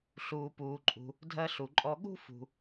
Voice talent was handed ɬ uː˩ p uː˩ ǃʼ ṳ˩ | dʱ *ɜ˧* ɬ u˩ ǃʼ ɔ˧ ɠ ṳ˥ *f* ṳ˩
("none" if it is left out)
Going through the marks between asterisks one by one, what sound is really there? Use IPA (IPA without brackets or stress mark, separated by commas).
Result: ɜ˧, f